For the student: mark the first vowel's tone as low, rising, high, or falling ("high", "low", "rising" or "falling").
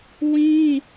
high